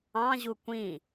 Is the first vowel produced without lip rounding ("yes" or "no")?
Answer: yes